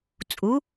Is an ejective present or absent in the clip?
present